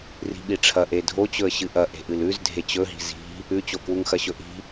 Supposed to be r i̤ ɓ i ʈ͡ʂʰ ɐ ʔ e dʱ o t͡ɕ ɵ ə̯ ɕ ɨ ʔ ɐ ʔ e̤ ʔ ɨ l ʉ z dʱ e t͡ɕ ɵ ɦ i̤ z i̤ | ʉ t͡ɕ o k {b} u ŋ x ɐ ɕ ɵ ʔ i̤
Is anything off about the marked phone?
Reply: yes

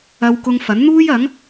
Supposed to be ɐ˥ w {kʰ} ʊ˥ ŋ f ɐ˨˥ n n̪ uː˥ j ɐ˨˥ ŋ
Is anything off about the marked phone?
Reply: yes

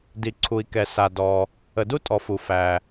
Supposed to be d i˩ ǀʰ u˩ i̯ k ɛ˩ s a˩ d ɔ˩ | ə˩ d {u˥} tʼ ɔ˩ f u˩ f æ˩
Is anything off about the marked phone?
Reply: no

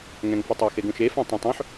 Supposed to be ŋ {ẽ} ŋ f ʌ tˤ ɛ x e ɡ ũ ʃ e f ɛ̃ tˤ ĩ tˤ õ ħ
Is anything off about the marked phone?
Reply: yes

